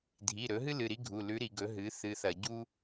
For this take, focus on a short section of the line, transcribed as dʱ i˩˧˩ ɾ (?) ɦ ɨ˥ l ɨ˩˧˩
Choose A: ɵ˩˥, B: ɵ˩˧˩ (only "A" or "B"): A